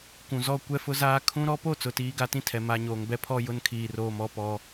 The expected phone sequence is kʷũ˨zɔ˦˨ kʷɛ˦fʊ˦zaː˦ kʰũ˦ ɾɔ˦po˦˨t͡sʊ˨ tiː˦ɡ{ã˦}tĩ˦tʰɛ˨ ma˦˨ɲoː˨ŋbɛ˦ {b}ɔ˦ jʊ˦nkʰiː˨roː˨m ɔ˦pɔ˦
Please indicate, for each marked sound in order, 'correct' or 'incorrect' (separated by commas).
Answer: incorrect, incorrect